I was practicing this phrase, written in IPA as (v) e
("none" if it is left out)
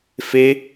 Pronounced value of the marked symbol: f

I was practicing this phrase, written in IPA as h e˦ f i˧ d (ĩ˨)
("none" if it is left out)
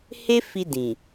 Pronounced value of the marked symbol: ĩ˨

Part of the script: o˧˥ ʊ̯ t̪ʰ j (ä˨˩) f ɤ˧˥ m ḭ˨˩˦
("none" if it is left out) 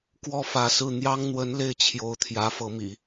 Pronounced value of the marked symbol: ä˧˥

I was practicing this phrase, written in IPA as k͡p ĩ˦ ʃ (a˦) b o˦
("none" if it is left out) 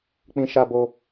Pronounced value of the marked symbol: a˦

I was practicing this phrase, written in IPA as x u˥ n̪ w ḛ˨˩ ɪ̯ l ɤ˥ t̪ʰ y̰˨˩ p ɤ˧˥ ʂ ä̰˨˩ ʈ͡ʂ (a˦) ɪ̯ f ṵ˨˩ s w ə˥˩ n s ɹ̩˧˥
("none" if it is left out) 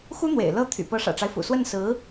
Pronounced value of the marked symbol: a˦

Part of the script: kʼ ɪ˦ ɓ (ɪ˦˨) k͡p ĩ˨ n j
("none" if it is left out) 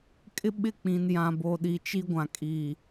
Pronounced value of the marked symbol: ɪ˦˨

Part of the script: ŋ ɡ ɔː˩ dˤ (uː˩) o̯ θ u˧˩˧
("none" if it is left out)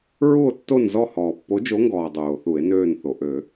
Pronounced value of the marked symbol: uː˩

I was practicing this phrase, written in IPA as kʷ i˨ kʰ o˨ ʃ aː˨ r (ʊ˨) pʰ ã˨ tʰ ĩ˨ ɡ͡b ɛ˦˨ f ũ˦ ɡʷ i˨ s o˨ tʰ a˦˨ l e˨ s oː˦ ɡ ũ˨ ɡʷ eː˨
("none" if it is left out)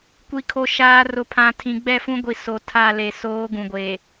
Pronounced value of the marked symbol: ʊ˨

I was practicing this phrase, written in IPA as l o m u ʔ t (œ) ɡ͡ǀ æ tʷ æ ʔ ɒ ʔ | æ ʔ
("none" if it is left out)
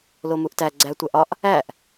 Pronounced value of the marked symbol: æ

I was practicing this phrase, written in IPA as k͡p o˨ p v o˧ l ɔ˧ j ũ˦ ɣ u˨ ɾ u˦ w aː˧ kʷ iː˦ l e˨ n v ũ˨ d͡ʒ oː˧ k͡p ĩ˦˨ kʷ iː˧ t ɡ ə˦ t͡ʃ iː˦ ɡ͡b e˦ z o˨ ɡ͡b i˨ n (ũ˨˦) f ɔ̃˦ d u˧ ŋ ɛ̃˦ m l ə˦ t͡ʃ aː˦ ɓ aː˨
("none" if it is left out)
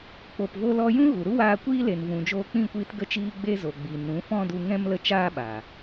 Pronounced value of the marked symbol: ũ˨˦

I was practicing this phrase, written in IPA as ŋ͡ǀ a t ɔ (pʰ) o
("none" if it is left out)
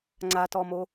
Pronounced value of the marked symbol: m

